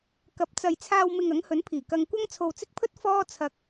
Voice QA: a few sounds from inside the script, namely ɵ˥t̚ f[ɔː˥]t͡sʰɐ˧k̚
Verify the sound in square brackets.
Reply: correct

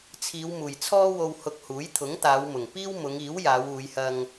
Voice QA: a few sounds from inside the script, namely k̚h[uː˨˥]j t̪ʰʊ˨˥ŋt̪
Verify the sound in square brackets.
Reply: correct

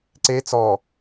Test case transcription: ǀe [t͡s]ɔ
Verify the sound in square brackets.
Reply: correct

